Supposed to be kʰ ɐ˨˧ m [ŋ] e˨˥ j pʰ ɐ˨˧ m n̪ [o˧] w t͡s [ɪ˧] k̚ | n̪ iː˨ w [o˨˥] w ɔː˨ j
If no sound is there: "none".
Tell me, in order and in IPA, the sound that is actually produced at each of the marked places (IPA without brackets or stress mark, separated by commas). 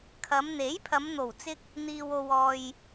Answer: n̪, o˨˩, ɪ˧, o˨